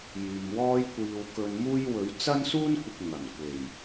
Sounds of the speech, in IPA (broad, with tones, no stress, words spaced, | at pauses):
jyː˨mwɔː˥jkʷiː˧w kɵ˧n muː˥j wɵ˨˥ɥt͡sɐ˥nsuː˥nkʷɪ˨k̚ ŋɐ˨˩nkʷe˨˩j